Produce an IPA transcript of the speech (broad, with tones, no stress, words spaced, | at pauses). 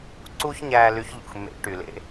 ǀu˥çɲæ˧ ly˧˥çʎṵ˩xmːḛ˧˥ ʈy˩lḛ˧˥